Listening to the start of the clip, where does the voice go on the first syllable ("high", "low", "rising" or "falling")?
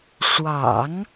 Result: low